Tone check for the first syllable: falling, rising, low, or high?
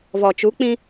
low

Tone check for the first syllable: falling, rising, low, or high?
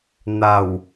low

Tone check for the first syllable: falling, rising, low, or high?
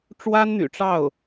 high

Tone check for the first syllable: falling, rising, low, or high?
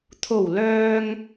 low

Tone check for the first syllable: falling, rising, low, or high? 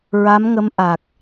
rising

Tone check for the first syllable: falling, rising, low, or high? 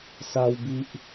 high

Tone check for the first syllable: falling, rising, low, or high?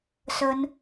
high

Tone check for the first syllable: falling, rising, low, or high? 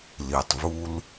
low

